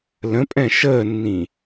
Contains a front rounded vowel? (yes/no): no